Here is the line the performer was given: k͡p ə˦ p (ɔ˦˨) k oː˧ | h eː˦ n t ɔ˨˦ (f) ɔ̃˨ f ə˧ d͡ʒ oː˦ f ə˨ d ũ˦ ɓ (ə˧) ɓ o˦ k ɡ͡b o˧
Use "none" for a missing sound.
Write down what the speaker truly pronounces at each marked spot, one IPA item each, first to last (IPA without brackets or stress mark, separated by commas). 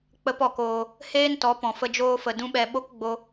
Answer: ɔ˧, p, ɛ˧